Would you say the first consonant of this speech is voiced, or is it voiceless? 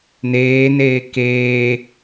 voiced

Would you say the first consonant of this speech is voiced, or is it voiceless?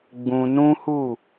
voiced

